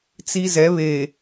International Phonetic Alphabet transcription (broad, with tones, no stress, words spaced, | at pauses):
t͡si˦zɛ˨˦βeː˨